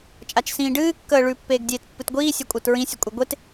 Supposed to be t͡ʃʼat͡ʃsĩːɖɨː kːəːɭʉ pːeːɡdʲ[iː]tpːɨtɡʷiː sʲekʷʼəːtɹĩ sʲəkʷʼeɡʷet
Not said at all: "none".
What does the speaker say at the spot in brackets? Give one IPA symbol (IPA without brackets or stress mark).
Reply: eː